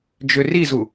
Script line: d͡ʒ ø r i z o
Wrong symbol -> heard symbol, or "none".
o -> u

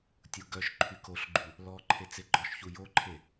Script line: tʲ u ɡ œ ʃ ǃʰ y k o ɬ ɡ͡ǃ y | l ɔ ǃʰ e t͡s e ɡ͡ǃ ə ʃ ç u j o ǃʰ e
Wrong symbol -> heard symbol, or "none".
ə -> ɔ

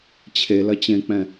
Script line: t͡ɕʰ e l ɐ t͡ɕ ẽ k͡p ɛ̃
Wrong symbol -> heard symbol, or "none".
none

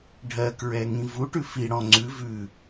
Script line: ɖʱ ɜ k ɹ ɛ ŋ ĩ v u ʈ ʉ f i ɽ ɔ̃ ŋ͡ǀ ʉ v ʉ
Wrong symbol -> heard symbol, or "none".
none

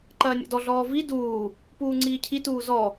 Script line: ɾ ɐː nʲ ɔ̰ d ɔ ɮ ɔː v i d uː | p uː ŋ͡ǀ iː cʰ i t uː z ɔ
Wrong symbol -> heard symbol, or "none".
ɾ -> ǃ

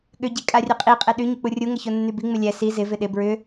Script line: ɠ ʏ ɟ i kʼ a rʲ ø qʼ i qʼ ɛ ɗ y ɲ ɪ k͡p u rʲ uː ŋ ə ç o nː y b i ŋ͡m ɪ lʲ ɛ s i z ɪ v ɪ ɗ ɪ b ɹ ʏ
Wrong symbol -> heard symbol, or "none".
uː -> u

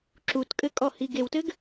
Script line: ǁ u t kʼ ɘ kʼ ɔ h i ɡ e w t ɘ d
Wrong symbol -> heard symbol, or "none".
d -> ɡ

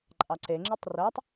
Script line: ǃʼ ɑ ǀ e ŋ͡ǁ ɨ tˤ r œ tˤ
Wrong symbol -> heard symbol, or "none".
none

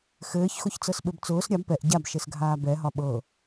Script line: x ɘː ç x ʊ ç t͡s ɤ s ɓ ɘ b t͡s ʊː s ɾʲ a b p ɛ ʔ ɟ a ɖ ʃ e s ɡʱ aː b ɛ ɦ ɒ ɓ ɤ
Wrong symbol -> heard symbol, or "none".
ɖ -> b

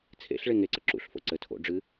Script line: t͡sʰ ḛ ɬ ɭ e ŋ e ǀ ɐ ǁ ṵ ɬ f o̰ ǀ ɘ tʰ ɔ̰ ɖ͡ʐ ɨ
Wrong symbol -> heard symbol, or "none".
ɔ̰ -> o̰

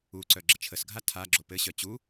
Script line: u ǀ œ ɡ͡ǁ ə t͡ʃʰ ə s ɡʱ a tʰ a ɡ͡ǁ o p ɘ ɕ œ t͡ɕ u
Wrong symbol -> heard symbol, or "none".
none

